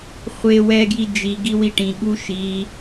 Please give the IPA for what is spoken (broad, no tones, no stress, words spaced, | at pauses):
χʷe wɛɡji d͡ʒi ɡiwiʈĩ ɠuʃi